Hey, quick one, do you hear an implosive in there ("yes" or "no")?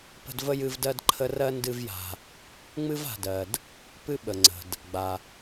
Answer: yes